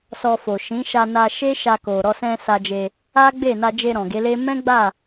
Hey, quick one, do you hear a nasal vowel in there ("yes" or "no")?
yes